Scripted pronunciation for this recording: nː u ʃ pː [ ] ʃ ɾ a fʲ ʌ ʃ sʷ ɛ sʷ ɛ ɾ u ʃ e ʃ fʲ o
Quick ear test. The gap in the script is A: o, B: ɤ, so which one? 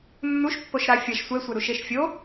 A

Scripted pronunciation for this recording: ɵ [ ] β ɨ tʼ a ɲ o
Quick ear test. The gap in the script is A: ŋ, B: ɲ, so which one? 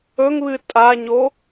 A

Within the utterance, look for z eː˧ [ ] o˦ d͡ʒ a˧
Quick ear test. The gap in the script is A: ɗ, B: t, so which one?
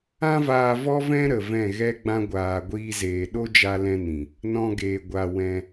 A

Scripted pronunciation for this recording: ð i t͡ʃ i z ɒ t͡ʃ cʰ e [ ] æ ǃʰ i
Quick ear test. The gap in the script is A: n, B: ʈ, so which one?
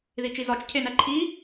A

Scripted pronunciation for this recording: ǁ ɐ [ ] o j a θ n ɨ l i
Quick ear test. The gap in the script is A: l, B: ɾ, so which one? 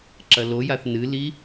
A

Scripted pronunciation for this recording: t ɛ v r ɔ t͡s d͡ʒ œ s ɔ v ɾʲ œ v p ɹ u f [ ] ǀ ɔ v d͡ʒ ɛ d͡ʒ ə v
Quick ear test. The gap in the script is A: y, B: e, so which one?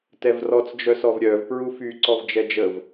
A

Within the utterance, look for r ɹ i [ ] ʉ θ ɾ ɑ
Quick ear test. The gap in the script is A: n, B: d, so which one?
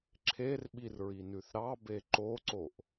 A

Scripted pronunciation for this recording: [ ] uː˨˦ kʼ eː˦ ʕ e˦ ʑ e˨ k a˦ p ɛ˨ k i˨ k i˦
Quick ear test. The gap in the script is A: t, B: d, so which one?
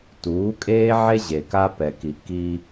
A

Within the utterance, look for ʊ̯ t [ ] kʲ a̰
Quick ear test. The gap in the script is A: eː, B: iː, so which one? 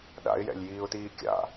B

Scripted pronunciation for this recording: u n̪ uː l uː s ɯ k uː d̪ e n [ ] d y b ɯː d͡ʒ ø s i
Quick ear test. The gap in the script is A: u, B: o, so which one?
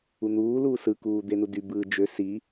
A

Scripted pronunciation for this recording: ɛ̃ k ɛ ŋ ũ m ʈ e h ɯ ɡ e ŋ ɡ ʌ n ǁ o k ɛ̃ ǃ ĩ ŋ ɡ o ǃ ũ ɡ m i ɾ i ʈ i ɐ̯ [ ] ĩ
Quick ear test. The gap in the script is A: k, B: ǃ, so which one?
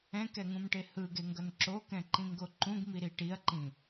B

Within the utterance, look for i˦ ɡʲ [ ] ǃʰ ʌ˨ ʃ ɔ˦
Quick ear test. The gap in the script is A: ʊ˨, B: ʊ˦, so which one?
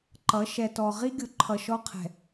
A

